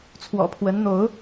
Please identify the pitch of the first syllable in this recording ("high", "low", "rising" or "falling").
low